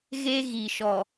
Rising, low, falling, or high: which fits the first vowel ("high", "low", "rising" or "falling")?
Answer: high